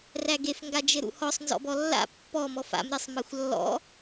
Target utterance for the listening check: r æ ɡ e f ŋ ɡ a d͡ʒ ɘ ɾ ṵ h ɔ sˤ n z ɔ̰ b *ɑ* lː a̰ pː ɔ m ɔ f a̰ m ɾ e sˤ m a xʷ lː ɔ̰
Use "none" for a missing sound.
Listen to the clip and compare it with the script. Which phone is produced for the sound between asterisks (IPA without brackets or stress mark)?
ɔ